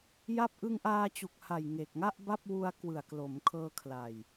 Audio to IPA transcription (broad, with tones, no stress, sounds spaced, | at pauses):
j a˥˩ p̚ ʔ ɯ˧ ŋ ʔ aː˧ t͡ɕ u˨˩ k̚ h a˨˩ j ŋ e˨˩ k̚ ŋ a˥˩ ʔ b a˥˩ p̚ w u˧ a̯ k w ɯ˨˩ a̯ k l o˩˦ m kʰ ɤː˧ kʰ l a˨˩ j